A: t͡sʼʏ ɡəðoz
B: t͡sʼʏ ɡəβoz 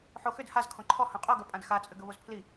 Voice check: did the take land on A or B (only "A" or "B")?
B